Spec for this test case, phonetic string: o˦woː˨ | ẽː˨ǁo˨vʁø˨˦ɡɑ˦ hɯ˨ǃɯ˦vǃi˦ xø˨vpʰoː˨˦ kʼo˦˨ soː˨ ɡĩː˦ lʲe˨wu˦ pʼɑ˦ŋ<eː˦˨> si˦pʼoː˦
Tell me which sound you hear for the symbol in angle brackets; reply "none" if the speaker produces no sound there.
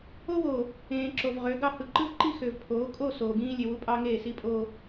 eː˦˨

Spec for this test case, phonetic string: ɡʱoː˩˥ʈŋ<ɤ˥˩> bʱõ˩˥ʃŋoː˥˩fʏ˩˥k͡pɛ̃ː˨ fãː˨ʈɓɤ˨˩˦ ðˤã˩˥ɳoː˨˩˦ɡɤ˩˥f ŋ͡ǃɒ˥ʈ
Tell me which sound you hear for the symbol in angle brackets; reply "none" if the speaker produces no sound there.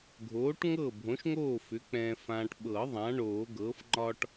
ɤ˥˩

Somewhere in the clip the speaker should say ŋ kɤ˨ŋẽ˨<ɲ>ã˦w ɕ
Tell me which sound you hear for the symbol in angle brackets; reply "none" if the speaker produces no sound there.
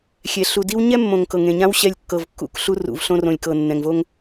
ɲ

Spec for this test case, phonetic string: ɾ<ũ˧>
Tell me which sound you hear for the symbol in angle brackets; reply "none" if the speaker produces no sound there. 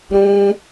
ũ˧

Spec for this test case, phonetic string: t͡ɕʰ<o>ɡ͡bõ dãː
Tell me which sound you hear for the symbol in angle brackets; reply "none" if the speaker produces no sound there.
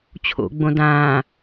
o̰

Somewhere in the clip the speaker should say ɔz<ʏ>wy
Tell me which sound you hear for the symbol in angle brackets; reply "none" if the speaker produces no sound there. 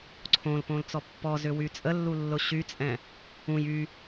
ʏ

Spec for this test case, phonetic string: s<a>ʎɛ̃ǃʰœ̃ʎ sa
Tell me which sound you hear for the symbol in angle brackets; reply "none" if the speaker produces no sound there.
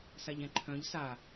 a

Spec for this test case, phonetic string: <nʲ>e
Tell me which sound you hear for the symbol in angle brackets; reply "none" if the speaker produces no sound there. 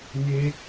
nʲ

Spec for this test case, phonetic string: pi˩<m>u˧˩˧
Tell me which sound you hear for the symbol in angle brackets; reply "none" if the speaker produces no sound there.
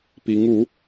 ŋ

